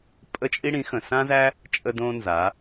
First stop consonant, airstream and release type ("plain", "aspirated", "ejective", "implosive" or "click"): ejective